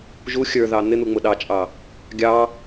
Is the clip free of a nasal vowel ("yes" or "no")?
yes